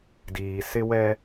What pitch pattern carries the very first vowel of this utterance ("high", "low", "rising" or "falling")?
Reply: low